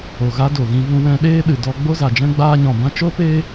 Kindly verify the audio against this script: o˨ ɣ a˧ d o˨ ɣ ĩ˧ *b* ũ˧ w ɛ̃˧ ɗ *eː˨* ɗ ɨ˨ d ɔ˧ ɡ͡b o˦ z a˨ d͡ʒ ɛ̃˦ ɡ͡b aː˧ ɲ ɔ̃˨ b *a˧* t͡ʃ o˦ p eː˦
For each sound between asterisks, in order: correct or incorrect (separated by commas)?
incorrect, incorrect, incorrect